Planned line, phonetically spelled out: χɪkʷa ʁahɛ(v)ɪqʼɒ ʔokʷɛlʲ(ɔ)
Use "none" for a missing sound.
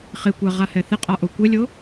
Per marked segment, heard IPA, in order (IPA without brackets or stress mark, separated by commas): θ, o